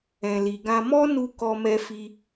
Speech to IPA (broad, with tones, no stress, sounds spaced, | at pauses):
ɛ̃˨ l i˨ ɡ ã˧ m ɔ˦ n u˧ k ɔ˧ m ɛ˧ f i˧